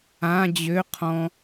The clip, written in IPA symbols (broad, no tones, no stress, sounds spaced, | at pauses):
ã d͡ʑ ø qʰ ɔ̃